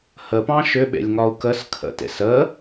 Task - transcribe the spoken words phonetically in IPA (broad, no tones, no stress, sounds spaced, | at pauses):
h ə p ɑ̃ ʃ ʏ ɓ ḛ lʲ ŋ ɒ u̯ k ə s kʰ ə̰ t ḛ s ə